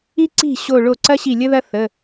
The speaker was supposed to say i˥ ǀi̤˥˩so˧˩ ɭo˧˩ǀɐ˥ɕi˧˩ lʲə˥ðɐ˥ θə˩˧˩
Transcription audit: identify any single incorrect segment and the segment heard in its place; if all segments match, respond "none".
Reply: s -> ɕ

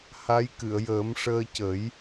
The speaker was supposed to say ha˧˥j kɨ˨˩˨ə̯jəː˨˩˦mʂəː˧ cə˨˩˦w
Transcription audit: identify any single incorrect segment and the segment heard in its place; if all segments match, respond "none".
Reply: w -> j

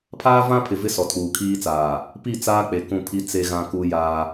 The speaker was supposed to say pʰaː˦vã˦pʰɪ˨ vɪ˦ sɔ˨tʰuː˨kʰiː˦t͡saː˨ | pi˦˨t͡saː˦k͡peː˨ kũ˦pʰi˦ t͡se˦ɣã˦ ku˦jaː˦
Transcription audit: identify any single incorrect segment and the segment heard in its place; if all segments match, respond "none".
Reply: eː˨ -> e˨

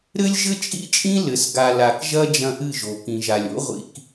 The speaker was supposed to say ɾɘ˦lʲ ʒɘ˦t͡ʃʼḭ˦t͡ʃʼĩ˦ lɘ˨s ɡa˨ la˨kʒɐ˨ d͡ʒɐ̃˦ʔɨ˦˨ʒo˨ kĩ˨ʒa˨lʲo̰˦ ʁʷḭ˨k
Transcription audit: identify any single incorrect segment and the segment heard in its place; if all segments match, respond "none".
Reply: ɐ˨ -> ɐ˦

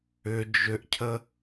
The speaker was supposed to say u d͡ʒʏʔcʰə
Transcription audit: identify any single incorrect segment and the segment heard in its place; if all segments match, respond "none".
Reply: u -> ʏ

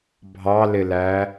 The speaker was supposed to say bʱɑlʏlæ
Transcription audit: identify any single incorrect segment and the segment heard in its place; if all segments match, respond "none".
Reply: ʏ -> ɪ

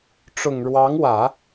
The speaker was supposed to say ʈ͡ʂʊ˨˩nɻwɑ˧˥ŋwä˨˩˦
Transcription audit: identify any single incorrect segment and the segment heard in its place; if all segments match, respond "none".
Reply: n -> ŋ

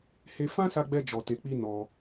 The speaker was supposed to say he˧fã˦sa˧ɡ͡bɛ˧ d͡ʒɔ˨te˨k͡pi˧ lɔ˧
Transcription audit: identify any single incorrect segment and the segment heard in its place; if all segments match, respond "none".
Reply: l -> n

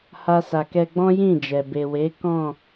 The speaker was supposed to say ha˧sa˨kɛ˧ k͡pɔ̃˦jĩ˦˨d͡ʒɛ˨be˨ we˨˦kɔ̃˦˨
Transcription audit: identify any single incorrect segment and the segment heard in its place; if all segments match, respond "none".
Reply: k͡p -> ɡ͡b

